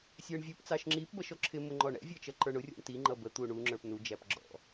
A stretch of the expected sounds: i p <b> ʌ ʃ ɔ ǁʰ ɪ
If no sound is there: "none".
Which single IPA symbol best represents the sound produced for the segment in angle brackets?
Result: b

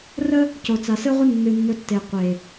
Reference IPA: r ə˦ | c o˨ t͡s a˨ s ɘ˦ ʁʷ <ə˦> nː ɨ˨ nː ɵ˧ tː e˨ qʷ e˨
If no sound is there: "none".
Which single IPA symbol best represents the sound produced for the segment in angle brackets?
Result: ə˦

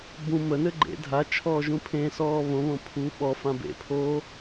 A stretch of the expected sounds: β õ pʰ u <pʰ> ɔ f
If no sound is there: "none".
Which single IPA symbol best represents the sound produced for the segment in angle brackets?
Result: ɓ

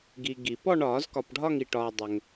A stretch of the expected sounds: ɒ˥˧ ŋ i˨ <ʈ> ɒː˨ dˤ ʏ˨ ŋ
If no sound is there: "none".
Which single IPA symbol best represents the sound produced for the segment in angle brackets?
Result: ʈ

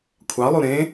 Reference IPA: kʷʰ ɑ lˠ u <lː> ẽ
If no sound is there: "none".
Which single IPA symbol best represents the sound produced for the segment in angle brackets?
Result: ɾ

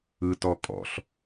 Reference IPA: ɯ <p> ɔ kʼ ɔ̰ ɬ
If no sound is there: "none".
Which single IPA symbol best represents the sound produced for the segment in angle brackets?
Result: t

